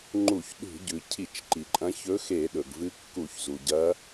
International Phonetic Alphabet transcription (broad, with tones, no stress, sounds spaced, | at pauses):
ŋ͡ǃ u˧˩˧ ç ɗ ṳ˧˩˧ ɟ ʉ˩ cʰ i˧˩˧ t͡ʃ ǃ i˩ ǃʼ ɐ̃˧˥ ç ɵ˧˥ x e˧˩˧ ɗ ɵ˩ ɡ v ɨ˧˥ kː u˧˩˧ ç z u˩ ɟ ɐ˧˥